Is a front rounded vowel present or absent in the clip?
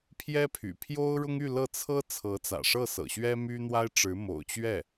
present